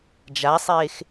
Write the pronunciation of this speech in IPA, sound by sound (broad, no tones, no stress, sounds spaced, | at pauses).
d͡ʒ a sˤ eː x